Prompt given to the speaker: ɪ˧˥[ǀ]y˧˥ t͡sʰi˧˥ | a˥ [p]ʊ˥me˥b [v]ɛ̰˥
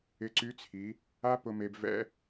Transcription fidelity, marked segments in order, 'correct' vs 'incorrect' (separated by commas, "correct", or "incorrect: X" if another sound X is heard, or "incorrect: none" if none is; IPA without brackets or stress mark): correct, correct, correct